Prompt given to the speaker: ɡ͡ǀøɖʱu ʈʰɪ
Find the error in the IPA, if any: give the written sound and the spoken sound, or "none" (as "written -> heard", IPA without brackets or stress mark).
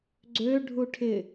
none